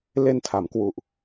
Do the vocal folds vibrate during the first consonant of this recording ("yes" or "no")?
yes